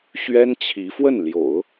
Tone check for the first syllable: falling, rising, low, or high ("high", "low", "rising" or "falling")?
high